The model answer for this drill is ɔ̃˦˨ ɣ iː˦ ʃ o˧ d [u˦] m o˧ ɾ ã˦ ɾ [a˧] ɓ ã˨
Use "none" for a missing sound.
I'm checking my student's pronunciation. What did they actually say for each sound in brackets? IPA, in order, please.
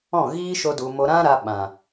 u˨, a˧

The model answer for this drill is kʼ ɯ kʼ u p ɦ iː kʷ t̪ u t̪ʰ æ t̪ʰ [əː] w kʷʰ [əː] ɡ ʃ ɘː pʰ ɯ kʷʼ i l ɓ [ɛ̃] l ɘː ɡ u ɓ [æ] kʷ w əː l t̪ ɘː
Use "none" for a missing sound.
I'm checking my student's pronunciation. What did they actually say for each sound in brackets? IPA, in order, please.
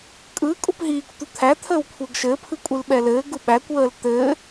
əː, əː, ɛ, æ

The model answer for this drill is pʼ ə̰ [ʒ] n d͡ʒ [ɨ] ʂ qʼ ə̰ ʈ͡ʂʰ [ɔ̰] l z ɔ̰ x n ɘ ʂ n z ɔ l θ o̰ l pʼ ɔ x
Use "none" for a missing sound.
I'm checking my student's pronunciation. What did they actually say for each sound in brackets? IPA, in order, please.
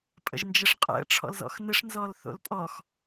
ʒ, ə, ɔ̰

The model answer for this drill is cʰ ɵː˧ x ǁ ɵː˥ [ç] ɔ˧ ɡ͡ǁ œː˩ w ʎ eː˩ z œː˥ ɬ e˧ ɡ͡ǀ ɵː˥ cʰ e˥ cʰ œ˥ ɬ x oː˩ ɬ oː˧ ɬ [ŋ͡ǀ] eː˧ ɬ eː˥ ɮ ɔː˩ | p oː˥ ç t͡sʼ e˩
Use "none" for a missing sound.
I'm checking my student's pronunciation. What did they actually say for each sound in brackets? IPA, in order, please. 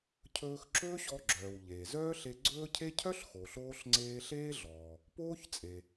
ɕ, ŋ͡ǀ

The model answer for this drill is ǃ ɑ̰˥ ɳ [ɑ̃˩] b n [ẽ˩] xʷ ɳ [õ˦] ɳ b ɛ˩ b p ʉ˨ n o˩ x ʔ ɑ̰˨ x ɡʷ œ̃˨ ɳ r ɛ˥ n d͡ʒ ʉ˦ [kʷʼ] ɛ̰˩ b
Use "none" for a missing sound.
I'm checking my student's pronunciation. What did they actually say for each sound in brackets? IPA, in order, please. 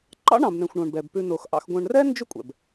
ɑ̃˩, ɛ̃˩, õ˩, kʷʼ

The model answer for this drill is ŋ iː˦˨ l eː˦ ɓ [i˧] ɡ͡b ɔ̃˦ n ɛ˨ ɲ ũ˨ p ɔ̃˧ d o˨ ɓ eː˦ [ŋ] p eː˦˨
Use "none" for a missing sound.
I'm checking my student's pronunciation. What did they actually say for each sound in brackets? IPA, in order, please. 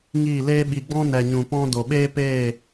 i˧, none

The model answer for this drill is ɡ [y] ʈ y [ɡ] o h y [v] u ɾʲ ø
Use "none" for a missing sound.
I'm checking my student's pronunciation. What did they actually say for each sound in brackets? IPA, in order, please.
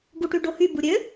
u, ɖ, b

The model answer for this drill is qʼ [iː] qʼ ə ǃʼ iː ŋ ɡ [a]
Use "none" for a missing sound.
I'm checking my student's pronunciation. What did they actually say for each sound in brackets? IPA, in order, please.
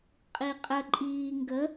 i, ə

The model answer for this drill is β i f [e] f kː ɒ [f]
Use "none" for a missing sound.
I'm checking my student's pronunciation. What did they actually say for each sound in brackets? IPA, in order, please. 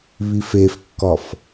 e, f

